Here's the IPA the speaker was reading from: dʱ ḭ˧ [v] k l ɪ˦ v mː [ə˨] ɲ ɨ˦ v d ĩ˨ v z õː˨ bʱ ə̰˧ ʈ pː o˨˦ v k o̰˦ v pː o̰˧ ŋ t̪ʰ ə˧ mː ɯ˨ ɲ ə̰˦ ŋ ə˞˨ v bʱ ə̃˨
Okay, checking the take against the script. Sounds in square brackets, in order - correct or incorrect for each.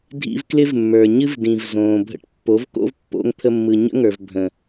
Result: correct, incorrect

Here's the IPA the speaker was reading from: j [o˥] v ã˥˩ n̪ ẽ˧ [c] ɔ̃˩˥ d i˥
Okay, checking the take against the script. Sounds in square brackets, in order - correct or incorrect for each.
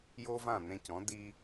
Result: correct, correct

